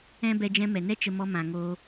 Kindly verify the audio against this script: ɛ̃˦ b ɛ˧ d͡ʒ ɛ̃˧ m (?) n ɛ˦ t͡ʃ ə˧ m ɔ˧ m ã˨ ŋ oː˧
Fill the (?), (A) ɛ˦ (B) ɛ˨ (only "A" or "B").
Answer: B